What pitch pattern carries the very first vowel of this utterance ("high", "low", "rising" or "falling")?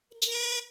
high